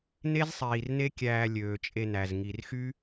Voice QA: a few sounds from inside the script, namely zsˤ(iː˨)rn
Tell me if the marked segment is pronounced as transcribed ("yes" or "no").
yes